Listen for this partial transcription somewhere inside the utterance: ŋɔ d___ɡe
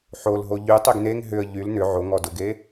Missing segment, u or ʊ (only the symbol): ʊ